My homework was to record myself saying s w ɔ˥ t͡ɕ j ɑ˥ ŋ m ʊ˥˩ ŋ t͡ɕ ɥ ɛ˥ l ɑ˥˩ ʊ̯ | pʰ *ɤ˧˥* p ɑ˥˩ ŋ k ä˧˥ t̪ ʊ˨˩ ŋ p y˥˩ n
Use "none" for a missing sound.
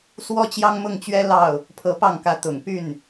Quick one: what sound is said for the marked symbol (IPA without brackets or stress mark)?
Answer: ɤ˧˥